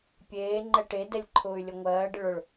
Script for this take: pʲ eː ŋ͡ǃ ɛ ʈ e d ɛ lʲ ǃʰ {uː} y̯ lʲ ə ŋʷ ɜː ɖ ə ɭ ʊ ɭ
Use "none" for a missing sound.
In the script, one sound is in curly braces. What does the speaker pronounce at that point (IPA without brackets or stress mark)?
ʊː